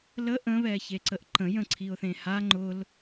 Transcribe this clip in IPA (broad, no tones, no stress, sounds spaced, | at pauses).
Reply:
l ə ʔ ə̃ β ɛ ç e ǀ ə ʔ ǃ ə̃ j ə̃ ǀʰ i ʊ̯ θ ẽ h a ŋ͡ǃ ʊ l